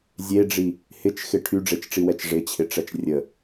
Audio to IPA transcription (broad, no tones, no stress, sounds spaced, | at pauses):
zʲ e ɖ͡ʐ i | h ɪ t͡ʃ x ɪ ʈʰ y ɖ͡ʐ e t͡ʃ ʈ͡ʂ i w ɛ t͡ʃ ʐ ɪ t͡ɕʰ ɪ ʈ͡ʂ ɛ t͡ʃ rʲ ə